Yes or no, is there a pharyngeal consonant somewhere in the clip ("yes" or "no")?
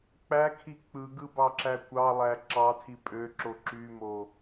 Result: no